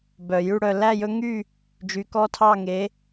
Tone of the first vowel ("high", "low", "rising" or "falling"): low